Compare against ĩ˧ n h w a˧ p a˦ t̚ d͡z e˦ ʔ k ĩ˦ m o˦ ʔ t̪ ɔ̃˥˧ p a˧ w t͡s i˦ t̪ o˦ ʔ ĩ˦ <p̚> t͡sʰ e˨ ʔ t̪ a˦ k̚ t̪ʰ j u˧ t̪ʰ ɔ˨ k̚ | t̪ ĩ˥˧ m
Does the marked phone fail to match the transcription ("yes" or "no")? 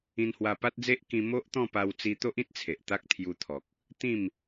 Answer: yes